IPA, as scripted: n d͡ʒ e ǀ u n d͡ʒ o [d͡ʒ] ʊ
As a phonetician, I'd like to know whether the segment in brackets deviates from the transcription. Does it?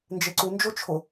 yes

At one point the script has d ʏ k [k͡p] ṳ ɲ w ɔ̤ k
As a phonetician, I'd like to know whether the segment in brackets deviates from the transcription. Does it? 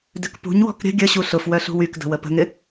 yes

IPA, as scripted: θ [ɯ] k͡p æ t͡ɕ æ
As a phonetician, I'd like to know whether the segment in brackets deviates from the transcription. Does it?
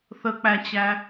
yes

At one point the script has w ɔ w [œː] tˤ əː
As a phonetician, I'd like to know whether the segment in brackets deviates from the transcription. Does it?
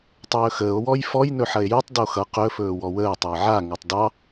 yes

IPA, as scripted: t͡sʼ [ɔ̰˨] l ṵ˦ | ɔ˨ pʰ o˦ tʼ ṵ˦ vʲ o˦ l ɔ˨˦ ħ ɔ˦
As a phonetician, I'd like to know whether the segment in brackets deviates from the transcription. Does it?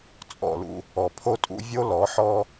yes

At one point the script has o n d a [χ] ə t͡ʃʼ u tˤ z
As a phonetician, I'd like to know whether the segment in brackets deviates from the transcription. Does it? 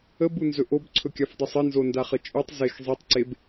no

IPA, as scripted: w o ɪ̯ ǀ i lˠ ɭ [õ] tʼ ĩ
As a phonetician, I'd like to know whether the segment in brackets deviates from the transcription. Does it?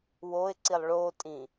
yes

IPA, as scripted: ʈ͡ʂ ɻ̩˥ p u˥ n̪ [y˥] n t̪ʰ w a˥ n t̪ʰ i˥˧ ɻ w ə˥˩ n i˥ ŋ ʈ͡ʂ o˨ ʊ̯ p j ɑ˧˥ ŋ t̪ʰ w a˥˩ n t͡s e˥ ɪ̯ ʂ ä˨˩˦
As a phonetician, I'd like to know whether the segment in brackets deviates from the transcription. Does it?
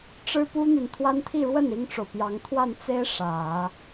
yes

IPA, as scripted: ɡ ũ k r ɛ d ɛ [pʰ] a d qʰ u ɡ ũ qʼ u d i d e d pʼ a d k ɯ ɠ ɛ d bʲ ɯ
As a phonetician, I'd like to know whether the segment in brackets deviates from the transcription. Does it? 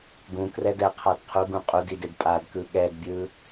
yes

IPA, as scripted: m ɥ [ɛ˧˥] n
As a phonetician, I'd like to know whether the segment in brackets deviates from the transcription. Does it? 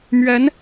no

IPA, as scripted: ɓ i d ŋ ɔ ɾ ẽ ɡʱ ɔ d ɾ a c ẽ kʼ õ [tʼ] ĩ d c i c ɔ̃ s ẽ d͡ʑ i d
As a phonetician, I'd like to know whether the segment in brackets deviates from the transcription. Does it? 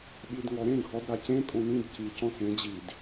yes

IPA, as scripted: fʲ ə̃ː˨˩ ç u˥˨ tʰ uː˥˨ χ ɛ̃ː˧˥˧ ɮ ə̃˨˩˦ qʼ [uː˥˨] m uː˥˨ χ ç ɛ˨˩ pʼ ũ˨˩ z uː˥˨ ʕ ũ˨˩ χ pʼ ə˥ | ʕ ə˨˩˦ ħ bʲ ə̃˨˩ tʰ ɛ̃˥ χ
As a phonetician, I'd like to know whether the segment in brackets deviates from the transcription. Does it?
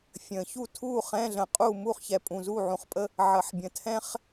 no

